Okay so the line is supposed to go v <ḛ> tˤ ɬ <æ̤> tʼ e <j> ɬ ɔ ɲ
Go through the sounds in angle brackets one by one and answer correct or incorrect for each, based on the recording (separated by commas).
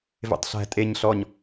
correct, correct, incorrect